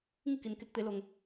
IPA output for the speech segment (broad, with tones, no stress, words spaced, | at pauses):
ŋi˥˨ki˩nke˧k̚t̪e˩˧ lo˩ŋ